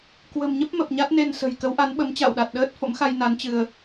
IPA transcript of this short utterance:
k w ə̤˨˩ m ɲ ə˦˥ p̚ m ə˨˩ p̚ ɲ a˦˥ t̚ n e˧ n s ə̤˨˩ j k ə˨˦ w ʔ a˨˦ n ɓ ə˨˦ m t͡ɕ a̰˧˨ w ɗ a˨˩ t̚ ɗ əː˦˥ t̚ f o̰˧˥ m x a˧ j n a˨˦ n t͡ɕ ɨ˧ ə̯

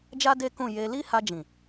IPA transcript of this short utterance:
d͡ʒ a˦ d e˦ k ũ˦˨ j e˧ l i˦ h a˧ d͡ʒ ĩ˨

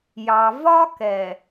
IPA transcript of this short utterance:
j ɑ˨ v ɒ˦ k ɛ˨

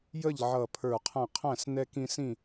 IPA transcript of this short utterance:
j ə˥˨ ʎ ʕ ʌ˧˩ pʰ ə˞˧˩ qʰ æ̃˥˨ qʰ æ̃˥˨ s n ɛ˦ k ĩ˦ s ĩ˥˨

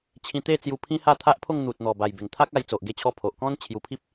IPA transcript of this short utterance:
t͡ɕʰ ĩ˧ t̪ e˥˧ t͡s j u˧ pʰ ĩ˦ h a˥˧ t̪ʰ a˦ ʔ pʰ o˥˧ ŋ n̪ u˨ t̚ n̪ ɔ˨˩ b a˨˩ j b e˨˩ ŋ t̪ʰ a˦ k̚ a˧ j t͡s o˨ ʔ ɡ e˧ t͡ɕʰ ɔ˧ pʰ o˨ ʔ k ɔ̃˦ n t͡ɕʰ j u˧ pʰ i˦ p̚

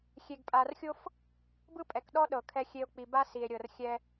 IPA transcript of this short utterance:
xʲ e˨ ɡ pʼ a˨ r xʲ o˦ f | b ɯ˦ pʼ ɛ˨ k ɗ ɔ˦ ɗ ɤ˨ kʰ ɛ˦ xʲ e˦ o̯ k͡p i˨ b a˦ s i˨ e̯ ɾʲ ɤ˨ r xʲ ɛ˦

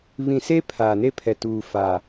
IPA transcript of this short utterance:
β ĩ˨ s e˦ pʰ a˨ n e˦ pʰ ɛ˨ t uː˨ f a˨

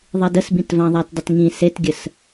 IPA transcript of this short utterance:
ðˤ i d ə s b ĩ t v ã ðˤ a t dˤ ə t ŋ ĩ s e t ɡʲ ə s

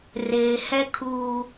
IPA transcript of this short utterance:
r eː˨ h ɛ˦ kʰ uː˦

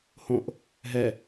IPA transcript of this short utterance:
h õ ʔ | ɦ ɛ

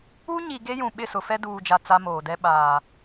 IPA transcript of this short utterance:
u˦ ɲ i˨ ɡ e˦ j ũ˨ ɓ ɪ˦˨ s ʊ˨ f ɛ˦ d uː˨ d͡ʒ a˨ t͡s a˦ m oː˨ d ɛ˦ ɓ aː˨

